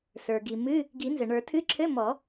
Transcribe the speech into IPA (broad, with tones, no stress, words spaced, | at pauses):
sə˞˩ɡi˩ mɨ˧˥˧ | ɡi˨˩˦nzɘ˩ɳə˞˨˩˦ tʰɨ˧˥˧ ǁʰɘ˧˥˧ mɔ˨˩˦